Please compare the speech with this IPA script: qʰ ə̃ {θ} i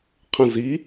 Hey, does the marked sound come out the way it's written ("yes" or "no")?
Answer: no